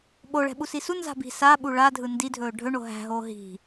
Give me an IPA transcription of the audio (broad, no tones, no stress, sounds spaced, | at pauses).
ɓ o ɭ ɛ̤ ɓ u s i s u n z a̤ b i̤ s aː ɓ u ɭ a dʱ ɯ n d i dʱ ɵː ɖʱ ɵ ɳ o ɦ æ̤ ɦ oː ɦ i̤